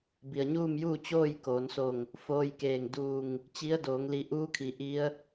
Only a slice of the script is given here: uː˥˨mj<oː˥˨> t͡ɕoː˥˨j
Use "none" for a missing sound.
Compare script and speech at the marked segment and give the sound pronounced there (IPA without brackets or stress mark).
uː˥˨